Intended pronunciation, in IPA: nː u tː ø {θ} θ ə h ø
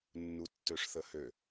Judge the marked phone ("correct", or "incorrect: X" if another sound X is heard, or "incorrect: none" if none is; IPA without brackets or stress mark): incorrect: ʂ